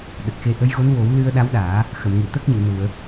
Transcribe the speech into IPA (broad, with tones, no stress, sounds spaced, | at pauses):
ɗ ə˨˩ k̚ x e˧ ʔ ə˧˥ j ɣ o˧˥ n w o˨˩˦ w l ɨ˧ ə̯ ɗ a˧˥ w ɗ aː˨˩˦ | x ə˨˩˨ m ŋ ɨ˨˩˨ t̪ əː˦˥ k̚ ɲ ə˨˩˨ w n u˨˩˨ ə̯